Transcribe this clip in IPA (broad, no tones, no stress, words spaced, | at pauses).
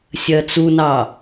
sʲɜt͡sunɑ